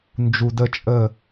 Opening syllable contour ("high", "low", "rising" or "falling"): low